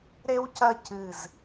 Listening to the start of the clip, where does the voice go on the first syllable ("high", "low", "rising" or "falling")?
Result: high